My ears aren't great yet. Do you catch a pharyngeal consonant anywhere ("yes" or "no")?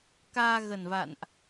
no